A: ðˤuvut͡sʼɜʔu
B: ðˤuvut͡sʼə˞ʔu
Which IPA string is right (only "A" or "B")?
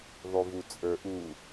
B